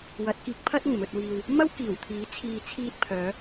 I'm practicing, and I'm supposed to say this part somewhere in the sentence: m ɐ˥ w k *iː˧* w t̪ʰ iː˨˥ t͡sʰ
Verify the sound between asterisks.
incorrect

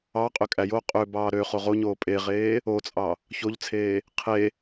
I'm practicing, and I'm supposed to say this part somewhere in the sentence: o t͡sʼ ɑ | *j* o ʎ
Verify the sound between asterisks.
incorrect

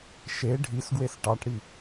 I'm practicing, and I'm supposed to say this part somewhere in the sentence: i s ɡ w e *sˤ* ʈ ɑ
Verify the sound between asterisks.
incorrect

